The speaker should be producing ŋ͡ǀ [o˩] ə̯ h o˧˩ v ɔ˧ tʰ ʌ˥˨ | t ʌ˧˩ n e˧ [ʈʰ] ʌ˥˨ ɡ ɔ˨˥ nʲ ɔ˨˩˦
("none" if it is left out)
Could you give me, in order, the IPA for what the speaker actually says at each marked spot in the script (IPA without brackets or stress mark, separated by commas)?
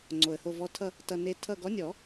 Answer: o˩, tʰ